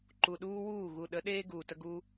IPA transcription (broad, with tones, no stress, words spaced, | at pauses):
ǃu˨ɗuː˦wuː˦˨ ɣu˨ɗə˨˦ ɗeː˦ ɡuː˨tə˦ ɡuː˦